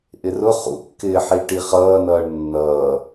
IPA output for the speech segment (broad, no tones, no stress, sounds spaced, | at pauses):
ʔ ɪ r ʊ χ ṵ kː ɪː ħ i ʈ i χ ʌː n ʌː ɳ nː ʌː